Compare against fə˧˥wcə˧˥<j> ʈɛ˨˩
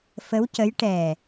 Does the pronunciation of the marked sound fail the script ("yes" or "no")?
no